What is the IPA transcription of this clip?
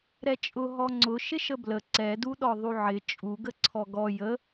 ɾ ɛ t͡ʃʼ ʊ ɦ ɔ ŋ͡ǀ ʊ ʃ ɪ ʃ ə b l ə ǀ ɛ d u ɗ ɔ ðˤ u ʕ ɪ t͡ʃʼ u ɡ ə ǀʰ ɔ ɡ ɔ j ə

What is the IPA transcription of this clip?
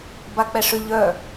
b a k͡p ɛ ʂ ʏ ʎ œ

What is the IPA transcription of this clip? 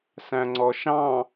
s æ̃ ŋ͡ǀ ɔ ʃ ɑ̃

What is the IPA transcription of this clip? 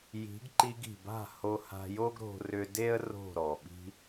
j i̤˨˦ ɡ ǃ i˧ ɡ i̤˨ b a̤˦˨ h o˧ h a̤˧ j o˦ ɡ ɾ o̤˧ r ʏ˧ d e˦ ə̯ r o̤˦˨ ɾ ɔ˨ ɓ i̤˧

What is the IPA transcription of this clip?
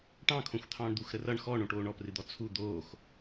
ʈ ɑ̃ kʰ õ xʷ t̪ʰ ɑ̃ː ɳ d̪ u x ɾ ə r ʌ ɳ x ɔ ɳ õ ʈ oː ɳ ɔ p r ɨ d̪ ɔ t͡sʰ u d̪ oː x

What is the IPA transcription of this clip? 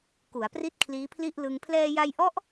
k u˩˦ a̯ p r i˥˩ t̚ kʰ l iː˦˥ pʰ l i˥˩ ʔ l ɯ˧ ŋ pʰ l ɛː˧ j a˧ j ʔ ɔ˦˥ ʔ

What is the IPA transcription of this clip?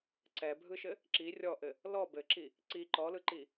ǀ ɛ bʱ ɯ ʃ ɘ | ǁ i rʲ ɔ ʔ ɘ | l ɔ b ɘ ǁ i | ǀ i ǃ ɔ l ɯ ǃ i

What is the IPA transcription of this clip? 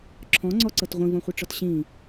ǁʰ ɔ̃ ŋ͡ǀ ɔ ǀ ɤ t ʁʷ ĩ v ɔ̃ χʷ ɤ ʈ͡ʂ ɔ t ɕ ĩ

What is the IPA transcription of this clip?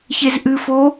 ç e z ʔ ɨ f o

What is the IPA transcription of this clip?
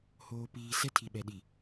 h oː˨ p iː˨ s ɛ˦ tʰ i˨ ɓ ɛ˨ ɗ i˨

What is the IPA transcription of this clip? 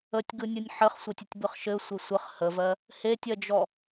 ə tʲ ɡ ɯ nʲ ɯ nʲ ħ ɘ χ sʷ ɘ tʲ ɘ tʲ b ɯ χ ʃ ɘ sʷ e sʷ ɘ χ h ə v ɜ | h e tʲ ɜ d͡ʒ ɔ

